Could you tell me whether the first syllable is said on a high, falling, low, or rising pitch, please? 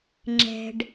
low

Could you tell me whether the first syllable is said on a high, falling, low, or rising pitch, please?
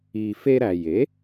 low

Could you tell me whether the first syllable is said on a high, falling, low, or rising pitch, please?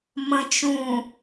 low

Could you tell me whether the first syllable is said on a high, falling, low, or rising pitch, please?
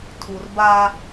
low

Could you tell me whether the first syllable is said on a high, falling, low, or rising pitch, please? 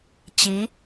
rising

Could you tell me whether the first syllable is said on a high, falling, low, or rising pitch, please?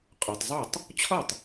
low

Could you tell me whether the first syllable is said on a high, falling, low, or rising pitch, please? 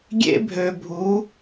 high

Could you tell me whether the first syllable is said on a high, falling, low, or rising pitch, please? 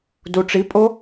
low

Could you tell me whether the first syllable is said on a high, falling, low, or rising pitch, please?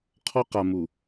high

